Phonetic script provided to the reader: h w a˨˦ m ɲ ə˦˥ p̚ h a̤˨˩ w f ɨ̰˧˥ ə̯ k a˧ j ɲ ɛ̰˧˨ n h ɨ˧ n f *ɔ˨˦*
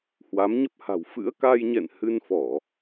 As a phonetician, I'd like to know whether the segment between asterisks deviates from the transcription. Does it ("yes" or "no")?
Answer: yes